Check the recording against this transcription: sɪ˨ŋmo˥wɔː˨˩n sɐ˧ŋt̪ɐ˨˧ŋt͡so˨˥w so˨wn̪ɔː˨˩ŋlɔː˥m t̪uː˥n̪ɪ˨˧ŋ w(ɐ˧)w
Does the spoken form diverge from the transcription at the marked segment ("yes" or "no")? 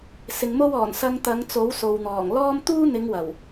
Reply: yes